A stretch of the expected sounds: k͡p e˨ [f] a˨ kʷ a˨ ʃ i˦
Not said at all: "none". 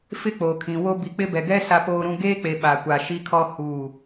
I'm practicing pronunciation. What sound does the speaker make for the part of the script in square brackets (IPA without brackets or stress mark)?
ɓ